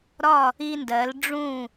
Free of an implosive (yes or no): yes